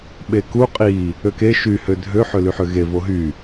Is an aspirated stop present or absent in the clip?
absent